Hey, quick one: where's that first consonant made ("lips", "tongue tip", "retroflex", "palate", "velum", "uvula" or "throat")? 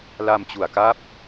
tongue tip